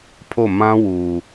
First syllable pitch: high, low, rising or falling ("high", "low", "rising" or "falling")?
falling